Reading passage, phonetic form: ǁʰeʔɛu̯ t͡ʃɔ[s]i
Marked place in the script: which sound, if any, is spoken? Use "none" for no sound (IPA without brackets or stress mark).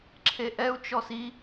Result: s